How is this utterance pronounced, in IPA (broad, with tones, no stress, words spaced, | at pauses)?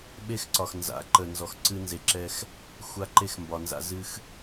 ɓe˦xǀɒ˨x nza̰˨˦ǃə˨ nzɔ˨xǀɨ˦ nze˨ǁɛ˦x | xʷa˦ǃe˦xmbɒ˨nza̰˦ zɨ˦x